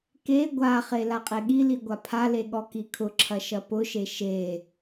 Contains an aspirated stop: yes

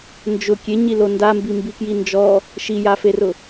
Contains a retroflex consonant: no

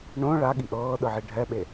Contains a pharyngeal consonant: yes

